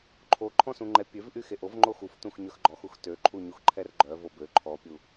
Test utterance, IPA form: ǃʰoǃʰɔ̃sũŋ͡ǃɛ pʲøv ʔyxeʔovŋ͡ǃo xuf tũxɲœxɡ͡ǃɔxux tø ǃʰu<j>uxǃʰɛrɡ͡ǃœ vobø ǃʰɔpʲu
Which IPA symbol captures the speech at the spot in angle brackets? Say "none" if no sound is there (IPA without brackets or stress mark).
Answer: ɲ